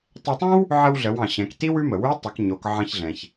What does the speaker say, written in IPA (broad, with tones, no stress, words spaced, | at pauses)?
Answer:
tˤe˧tˤõ˥w | ʕə˧wɮə˩˧wɑ̃˩ ɕɛ̃˩˧kti˥wʉ˧˥mə˩ wʉ˧˥tˤo˩˧k ɲo˩˧kʕɑ̃˧çɮɛ̃˩ç